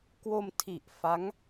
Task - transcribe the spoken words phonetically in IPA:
k w o˧ m tʰ i˨˩ ʔ f a˦˥ ŋ

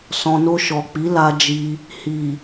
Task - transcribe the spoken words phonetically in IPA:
s ɔ̃˨ n o˧ ʃ ɔ˨ k͡p i˨˦ l a˧ d͡ʒ i˧ | h i˨

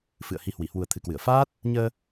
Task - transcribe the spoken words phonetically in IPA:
f ɨ̰˧˨ ə̯ h i˨˦ h w i˧˩ h w u˨˩ ə̯ t̪ʰ ɨ˨˩ k w ɨ˧˩ ə̯ f aː˦˥ t̚ | ɲ əː˧

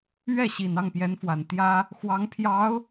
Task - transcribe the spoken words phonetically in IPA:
ɥ ɛ˥˩ ɕ i˨˩ n ɑ˥˩ ŋ p j ɛ˧˥ n f w a˨˩ n t̪ j ä˥ | x w ɑ˧˥ ŋ pʰ j ɑ˧˥ ʊ̯

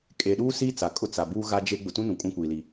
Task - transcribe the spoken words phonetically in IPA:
kʼ e˨ ɗ uː˦ s iː˦ t͡s a˨ kʼ ʊ˦ t͡s a˨ b uː˦ ɣ a˦ d͡ʒ e˦ ɡ͡b ʊ˨ t ũ˦ n ũ˨ kʼ ũ˦ kʷ iː˨ l i˨

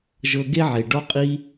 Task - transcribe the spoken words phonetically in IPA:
ʒ ɤ˧ ɡ e˦ ʕ e˨ ɖ ɔ˧ qʼ i˧

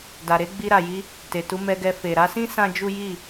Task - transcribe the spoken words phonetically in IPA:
d a˨ ɾ e˨˦ ɡ͡b i˧ ɾ a˨ j i˧ | t e˨ t u˨˦ m ɛ˧ ɡ ɛ˧ f e˨ ɾ a˧ s ĩ˦ s ã˦ d͡ʒ u˦ j i˦˨

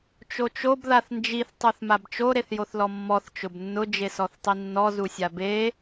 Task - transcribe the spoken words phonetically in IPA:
t͡ʃ o t͡ʃ o b ð a θ n d͡ʒ i θ tˤ u θ m a b t͡ʃ o ɾ e θ j o θ l ɔ mː ɔ θ t͡ʃ ʊ b nː ʊ d͡ʒ e s ɔ θ tˤ i nː ɔ z u sʲ a b e

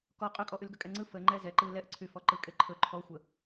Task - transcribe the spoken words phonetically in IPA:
k ɔ qʼ ɵ kʼ ɔ ʔ y l ɡ ə kʼ ɛ ŋ͡ǀ ɯ f ə ŋ͡ǃ ɛ z ɛ ǃ ɯ l ɛ ʔ ǀʰ y f ɔ ǃ ɯ kʼ e ǃʰ ɵ ǃʰ ɔ xʷ ə

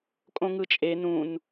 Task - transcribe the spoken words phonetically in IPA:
kʼ õ ŋ ɯ t͡ʃʼ e n ũ n

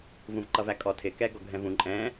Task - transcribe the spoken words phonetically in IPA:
v ũ v ǃ ʌ v æ kʼ ɔ tʰ ɪ k ɛ ɡ ɔ ɡʱ ɛ̃ v ũ ǃʼ ɛ̃

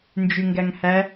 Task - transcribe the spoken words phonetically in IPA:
n d͡ʒ y ŋ ɡ æ ŋ h æ

